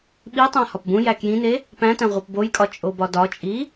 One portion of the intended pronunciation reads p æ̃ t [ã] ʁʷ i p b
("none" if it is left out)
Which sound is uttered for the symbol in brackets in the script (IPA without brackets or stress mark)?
æ̃